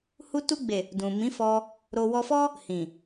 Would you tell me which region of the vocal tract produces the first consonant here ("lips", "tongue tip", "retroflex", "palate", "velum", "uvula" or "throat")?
throat